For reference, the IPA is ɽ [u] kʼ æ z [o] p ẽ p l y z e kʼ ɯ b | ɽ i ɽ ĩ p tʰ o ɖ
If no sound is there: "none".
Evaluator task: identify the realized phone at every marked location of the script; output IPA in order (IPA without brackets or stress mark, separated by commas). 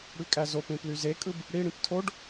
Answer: y, o